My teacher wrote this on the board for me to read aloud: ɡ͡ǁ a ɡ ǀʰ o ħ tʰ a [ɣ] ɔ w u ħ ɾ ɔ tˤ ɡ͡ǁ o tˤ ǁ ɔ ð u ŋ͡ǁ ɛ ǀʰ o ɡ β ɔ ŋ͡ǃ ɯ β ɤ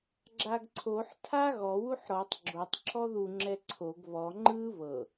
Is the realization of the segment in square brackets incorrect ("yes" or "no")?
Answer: no